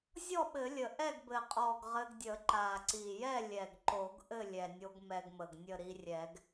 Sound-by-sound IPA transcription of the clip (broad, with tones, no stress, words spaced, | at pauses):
zʲɔ˥˨ɓɘ˨˩˦lʲə˨˩ ʔɛ˥˨ɡbɘ˨˩qʼɔ˨˩ɡ ʁɘ˧ɡdʲə˨˩˦ ǃa˨˩ǀi˨˩jɛ˥˨lʲɛ˨˩ɡ ǃo˨˩˦ɡ ʔɘ˥˨lʲɛ˨˩nʲo˧ɡ mɛ˧ɡmə˨˩ɡnʲə˥˨ ɾi˧rʲɛ˨˩˦ɡ